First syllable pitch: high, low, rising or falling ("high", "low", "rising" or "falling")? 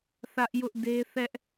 high